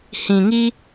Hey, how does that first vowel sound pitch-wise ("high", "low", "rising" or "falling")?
low